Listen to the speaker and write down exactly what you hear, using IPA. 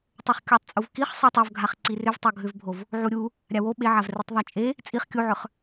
tˤ o χ kʲ u tˤ t͡sʼ u v k i χ sˤ i tˤ o v ɡʱ a χ ǀ i r ʏ v tˤ o ɡʱ ʏ v bʱ o v | ʕ u ɾʲ u | ɾʲ a w o ɓ e ʕ a v r i tˤ ðˤ a t͡ʃʼ e | t͡sʼ i χ kʲ u ʕ ʏ χ

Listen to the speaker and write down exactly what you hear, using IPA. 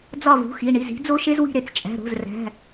d͡z ɒ˦˨ v ṳ˩˧˩ x i˩˧˩ ɳ i˩˧˩ z i̤˨˥ d͡z o˥ ʃ e˥ z w i̤˦˨ ɾ e˩˧˩ t͡s t͡ʃʼ æ̤˩˧˩ ɾ o̤˩˧˩ z r æ̤˩˧˩

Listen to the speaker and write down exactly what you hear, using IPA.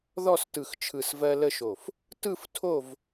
ð ɔ˥˨ s t ɯ˧˩ x t͡ʃʰ ɯ˧˩ s v ɜ˦ l ə˥˨ ʃ o˧˩ f | t ɯ˥˨ f tʰ o˥˨ v

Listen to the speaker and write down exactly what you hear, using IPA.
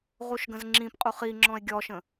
ʁ u ʃ ɡ ə̃ z ŋ͡ǁ ĩ p qʼ u χ i ŋ͡ǁ ɔ̃ e̯ ɡʲ ɔ ʃ ə̃

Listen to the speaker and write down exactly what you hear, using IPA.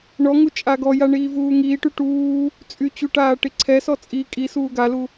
ɳ ɔ ŋ u t͡ʃʼ a ɡ ɔ j a ɳ iː v uː ŋ iː ʈ y ʈ uː | t͡sʼ y t͡ɕ u ʈ aː ʈ i ǀʰ ɛ s ɔ t͡sʼ i kʼ i s uː ɡ a l u

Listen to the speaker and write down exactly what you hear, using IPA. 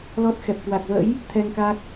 l ɔ˦˥ t̚ x ɛ˨˩ p̚ k w a˨˩ k̚ v ə̰˧˥ j | t̪ʰ ɛ˧ ŋ k a˦˥ k̚

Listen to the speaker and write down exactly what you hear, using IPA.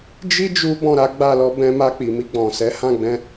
d͡ʒ i˦ d͡ʒ u˦ b ɔ̃˦˨ ɾ a˨˦ ɡ͡b a˦˨ l ɔ˧ b ɛ̃˧ m a˧ k͡p i˨ m i˧ ɡ͡b ɔ̃˨ s ɛ˨˦ h ã˦˨ ɡ͡b ɛ̃˧

